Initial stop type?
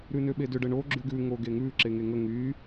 implosive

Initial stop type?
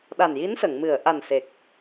implosive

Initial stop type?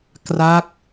plain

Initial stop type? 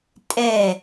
ejective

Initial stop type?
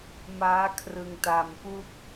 aspirated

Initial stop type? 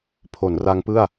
aspirated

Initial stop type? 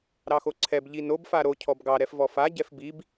click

